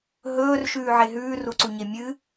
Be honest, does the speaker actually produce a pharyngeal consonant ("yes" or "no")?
yes